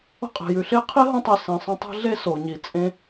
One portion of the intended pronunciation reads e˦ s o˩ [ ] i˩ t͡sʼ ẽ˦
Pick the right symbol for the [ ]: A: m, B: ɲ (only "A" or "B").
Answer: B